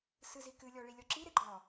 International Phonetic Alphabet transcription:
s ɨ z i k ɨ lʲ ɔ ɭ i lʲ ɔ ǁ i ɾ e ɡ͡ǃ ɔ

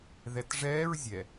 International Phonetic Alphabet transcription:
ð ɛ t ʐ ɛː ɹ zʲ ɛ

